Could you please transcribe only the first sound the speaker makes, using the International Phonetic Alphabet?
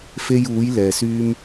f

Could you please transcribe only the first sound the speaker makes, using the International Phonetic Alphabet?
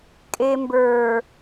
kʼ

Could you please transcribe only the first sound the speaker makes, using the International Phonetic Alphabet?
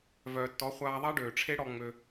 v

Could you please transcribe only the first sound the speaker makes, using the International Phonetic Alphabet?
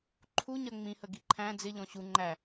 ǃʰ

